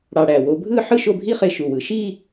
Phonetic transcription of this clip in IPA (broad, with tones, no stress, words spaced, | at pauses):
ɽɑ˧ɽæ˧˩wo˧ bʱɯ˥˧ħɯ˥˧ ʃo˥˧bʱi˥ χe˥˧ʃu˧˩wɯ˧˩ ʃi˥˧